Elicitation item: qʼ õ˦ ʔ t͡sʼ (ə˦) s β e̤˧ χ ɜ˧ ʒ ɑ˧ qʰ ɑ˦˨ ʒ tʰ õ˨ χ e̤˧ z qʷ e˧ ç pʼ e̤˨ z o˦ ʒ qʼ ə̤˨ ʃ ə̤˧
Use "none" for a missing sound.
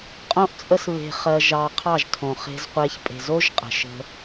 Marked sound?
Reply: ə˦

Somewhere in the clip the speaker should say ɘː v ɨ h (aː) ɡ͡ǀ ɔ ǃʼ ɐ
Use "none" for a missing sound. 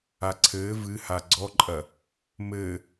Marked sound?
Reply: a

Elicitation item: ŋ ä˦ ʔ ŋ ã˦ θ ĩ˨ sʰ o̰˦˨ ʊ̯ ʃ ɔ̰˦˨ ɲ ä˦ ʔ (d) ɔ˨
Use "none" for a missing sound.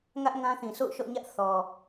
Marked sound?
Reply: θ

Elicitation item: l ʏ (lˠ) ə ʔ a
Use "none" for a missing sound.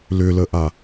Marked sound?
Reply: l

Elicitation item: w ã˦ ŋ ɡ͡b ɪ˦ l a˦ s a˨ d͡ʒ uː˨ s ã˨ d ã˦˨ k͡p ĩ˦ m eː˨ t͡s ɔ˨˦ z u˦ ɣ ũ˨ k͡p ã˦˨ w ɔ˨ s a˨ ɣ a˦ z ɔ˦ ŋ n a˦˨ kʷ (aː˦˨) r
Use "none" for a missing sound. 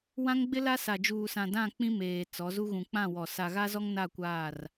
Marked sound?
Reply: aː˦˨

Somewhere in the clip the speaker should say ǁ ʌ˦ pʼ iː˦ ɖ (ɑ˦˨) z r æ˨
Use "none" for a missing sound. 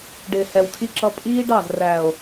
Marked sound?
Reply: ɑ˦˨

